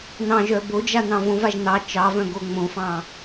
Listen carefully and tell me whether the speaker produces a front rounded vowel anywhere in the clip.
yes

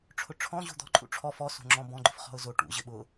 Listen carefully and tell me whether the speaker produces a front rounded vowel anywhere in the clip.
no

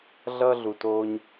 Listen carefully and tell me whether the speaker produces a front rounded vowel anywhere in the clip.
no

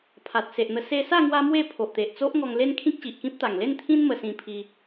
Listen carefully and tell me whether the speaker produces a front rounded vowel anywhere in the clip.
no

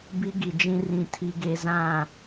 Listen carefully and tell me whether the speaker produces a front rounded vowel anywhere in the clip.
no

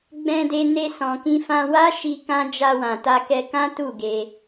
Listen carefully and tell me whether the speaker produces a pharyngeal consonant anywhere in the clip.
no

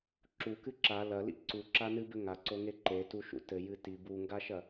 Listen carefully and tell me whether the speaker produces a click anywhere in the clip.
yes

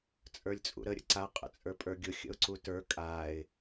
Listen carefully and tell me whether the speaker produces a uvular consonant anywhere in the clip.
yes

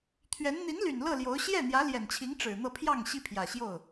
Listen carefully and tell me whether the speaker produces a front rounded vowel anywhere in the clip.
yes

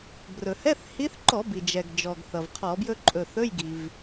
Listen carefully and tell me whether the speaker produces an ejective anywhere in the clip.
yes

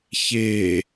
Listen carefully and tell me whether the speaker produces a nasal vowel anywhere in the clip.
no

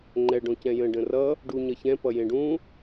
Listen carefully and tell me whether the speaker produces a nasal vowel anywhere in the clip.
yes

